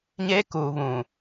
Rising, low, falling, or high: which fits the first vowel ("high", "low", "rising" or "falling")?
high